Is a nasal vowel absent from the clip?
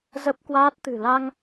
yes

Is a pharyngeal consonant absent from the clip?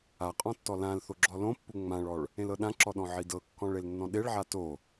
no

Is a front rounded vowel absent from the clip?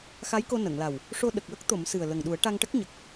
yes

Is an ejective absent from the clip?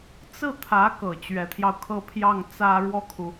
yes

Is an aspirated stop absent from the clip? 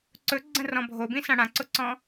yes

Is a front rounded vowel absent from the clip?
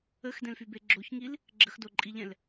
no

